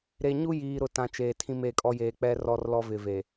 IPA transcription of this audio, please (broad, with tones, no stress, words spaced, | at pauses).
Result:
ɾe˨ɲu˦jiː˨ ɾʊ˨tã˨ t͡ʃeː˨tʰĩ˦me˦˨kʼɔ˦ jeː˨k͡pɛ˦ rɔ˦rlɔ˦ vɪ˨ve˨